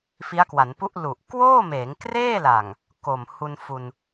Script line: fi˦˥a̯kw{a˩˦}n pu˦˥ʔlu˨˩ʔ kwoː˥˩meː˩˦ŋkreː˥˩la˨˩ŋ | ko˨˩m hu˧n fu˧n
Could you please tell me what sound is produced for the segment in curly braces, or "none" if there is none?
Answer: a˩˦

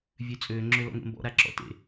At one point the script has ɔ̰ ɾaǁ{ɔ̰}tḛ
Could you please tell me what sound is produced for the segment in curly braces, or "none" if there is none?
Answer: ɔ̰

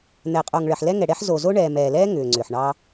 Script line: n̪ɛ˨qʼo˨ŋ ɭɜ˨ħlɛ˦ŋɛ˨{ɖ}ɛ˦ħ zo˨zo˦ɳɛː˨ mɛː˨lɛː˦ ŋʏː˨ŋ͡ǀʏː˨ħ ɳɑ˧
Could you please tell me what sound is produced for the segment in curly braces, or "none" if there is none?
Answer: ɽ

